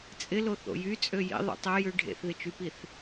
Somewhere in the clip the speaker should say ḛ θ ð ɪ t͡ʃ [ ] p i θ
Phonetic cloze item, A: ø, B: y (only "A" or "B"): B